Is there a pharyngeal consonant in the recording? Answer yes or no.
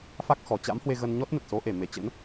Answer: no